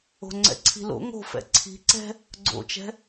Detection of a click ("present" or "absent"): present